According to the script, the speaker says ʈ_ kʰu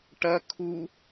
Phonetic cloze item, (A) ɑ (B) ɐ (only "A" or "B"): B